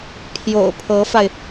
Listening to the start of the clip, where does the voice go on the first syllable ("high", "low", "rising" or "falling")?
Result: low